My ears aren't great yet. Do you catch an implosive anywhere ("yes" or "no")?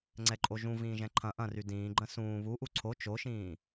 no